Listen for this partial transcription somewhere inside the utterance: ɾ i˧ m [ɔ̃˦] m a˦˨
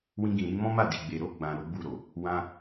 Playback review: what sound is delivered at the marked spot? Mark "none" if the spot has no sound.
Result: ɔ̃˦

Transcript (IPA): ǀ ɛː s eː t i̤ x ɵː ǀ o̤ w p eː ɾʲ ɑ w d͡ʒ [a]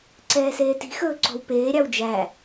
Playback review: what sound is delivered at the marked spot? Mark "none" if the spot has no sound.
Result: æ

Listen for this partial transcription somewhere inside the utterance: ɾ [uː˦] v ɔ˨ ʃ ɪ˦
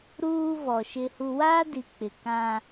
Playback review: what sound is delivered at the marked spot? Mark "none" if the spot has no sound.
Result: uː˦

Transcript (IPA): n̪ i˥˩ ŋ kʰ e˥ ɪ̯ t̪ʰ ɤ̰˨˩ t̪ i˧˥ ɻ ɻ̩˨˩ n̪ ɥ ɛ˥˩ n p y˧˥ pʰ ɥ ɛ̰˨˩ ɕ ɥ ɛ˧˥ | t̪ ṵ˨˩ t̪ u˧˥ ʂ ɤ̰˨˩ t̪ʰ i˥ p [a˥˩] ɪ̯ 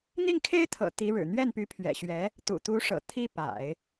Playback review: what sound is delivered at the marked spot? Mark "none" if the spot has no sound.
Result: a̰˨˩˦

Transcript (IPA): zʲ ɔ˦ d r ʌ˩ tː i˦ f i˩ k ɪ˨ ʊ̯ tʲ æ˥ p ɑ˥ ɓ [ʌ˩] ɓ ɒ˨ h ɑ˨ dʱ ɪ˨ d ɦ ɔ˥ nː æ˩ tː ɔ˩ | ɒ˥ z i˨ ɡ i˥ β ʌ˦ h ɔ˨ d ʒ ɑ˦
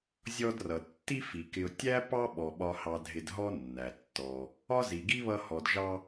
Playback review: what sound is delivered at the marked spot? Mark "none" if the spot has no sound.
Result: ɔ˩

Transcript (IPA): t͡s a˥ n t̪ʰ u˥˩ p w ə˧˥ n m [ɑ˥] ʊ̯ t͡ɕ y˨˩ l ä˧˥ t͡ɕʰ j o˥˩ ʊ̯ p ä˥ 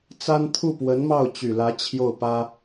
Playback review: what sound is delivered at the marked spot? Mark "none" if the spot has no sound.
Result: ɑ˥˩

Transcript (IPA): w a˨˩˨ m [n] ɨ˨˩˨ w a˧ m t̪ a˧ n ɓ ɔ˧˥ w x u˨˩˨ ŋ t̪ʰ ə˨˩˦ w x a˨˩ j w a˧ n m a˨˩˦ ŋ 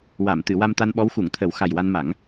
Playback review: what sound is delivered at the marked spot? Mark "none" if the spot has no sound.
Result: t̪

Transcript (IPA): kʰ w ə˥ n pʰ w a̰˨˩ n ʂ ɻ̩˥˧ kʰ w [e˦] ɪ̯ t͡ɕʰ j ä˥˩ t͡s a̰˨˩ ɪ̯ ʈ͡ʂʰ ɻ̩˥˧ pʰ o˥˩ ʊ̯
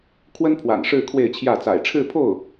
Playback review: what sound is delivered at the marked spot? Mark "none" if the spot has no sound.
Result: e˥˧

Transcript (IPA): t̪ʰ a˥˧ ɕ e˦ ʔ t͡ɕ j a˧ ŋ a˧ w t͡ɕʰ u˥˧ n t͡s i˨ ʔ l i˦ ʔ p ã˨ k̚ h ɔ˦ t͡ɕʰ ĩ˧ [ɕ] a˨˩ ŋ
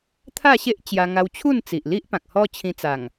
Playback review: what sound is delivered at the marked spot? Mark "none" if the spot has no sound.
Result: t͡s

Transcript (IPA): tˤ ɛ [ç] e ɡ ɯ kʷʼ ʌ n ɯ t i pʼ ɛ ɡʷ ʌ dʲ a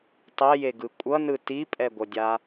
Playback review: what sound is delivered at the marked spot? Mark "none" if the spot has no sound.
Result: j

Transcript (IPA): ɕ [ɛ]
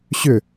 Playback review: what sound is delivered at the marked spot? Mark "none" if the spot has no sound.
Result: ʏ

